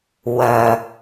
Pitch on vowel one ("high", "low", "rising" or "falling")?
low